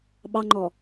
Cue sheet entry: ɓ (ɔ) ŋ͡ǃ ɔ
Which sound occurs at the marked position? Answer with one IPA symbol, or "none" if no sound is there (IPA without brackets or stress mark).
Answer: ɑ